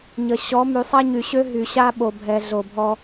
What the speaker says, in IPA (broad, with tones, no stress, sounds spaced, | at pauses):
ɲ ə˨ ɕ ɔ˨˦ m y˨ sˤ a˦ ɲ y˨ ɕ ø˦ ɦ y˨ ɕ a˦ ɓ o˨ bʱ ɛ˨ ɮ o˨ bʱ ɔ˦